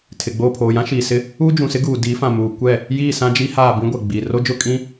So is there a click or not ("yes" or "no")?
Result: no